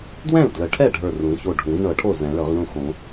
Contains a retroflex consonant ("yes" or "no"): yes